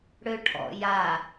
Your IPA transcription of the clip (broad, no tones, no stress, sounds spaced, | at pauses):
ɽ ø ʈʰ ɔ̰ j a